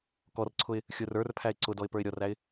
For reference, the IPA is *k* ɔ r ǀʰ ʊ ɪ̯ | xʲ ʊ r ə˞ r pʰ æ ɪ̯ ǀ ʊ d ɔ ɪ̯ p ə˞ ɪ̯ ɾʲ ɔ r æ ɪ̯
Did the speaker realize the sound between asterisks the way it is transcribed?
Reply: yes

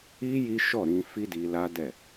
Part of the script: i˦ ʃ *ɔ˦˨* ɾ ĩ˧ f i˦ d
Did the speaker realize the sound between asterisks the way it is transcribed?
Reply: yes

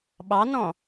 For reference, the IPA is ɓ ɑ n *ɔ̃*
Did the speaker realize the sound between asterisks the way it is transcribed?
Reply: yes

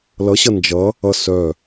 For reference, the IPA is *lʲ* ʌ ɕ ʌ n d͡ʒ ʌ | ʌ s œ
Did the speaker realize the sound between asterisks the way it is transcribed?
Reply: no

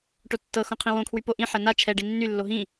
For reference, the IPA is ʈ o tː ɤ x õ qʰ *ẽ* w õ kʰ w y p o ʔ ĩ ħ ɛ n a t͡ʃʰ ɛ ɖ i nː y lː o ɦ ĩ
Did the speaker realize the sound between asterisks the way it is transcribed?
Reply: no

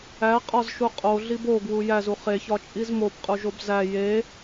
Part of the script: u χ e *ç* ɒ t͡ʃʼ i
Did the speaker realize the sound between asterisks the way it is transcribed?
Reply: yes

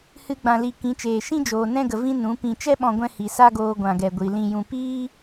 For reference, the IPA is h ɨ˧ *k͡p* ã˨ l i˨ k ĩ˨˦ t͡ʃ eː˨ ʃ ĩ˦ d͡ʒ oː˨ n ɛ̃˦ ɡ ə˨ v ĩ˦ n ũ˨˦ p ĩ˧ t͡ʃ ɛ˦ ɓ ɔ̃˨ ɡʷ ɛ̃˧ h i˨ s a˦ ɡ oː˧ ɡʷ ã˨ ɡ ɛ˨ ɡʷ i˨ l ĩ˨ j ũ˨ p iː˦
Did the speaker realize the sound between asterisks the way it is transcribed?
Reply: no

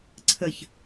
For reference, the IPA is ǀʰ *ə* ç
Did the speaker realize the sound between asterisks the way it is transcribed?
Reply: yes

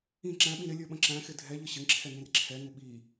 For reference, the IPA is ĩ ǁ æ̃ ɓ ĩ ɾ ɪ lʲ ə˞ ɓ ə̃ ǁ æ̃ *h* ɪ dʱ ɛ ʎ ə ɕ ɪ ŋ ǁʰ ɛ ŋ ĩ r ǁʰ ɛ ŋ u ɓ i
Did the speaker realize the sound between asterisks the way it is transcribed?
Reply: no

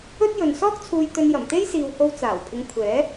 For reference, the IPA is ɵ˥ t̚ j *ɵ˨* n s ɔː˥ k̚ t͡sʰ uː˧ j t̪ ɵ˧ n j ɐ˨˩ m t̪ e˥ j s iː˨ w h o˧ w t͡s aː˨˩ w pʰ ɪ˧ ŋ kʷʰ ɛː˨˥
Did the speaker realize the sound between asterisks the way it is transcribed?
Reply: yes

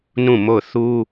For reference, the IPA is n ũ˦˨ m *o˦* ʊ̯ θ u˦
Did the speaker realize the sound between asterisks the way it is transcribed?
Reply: no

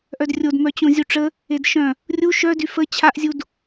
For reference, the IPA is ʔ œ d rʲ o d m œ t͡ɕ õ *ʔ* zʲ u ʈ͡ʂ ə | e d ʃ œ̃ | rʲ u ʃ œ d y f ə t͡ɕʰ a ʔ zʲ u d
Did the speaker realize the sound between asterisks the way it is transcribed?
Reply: no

